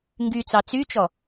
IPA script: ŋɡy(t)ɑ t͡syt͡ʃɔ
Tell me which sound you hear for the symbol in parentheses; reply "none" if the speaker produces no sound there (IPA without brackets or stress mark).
t͡s